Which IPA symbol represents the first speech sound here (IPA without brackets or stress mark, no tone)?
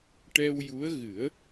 ʈ